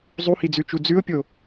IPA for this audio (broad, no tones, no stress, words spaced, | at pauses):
zˤuhid͡zʉt͡ʃu d͡zʉʊ̯pʲo